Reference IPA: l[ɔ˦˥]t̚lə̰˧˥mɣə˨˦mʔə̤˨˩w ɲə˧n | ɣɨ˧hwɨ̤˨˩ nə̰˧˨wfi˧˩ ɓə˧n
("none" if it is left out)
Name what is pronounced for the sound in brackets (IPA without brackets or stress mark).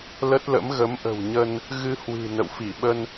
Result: ə˦˥